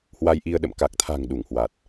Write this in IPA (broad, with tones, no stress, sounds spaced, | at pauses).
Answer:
h w a˧ j ʔ i˧ ə̯ ɗ ə̰˧˨ m k a˨˩ k̚ t̪ʰ a̤˨˩ ŋ ɗ u˧˩ ŋ h w a˨˩ t̚